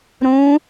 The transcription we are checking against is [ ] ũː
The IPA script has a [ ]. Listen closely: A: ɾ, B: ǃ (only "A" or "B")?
A